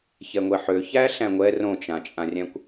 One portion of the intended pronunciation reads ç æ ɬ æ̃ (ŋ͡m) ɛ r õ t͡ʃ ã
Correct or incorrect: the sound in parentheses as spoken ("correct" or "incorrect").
incorrect